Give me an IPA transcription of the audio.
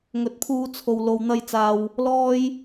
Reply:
ŋ ɵ˨ t̚ pʰ uː˧ t͡sʰ o˨ w l o˨ w n̪ ɐ˧ j t͡s aː˨ w | l ɔː˥ j

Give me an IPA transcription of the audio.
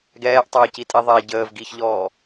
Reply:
ɡ ɛː ʔ tˤ əː c i tʼ i ðˤ ɛ ɟ əː v ɡ i ç ʎ ɔː

